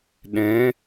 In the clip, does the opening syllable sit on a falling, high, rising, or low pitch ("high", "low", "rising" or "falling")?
rising